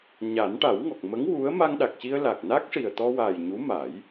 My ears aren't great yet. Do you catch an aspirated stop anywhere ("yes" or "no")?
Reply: no